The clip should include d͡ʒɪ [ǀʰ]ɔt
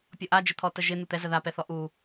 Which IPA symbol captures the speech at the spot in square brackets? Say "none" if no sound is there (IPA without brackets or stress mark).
t̪ʰ